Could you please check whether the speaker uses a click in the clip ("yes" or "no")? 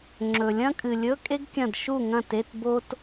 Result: yes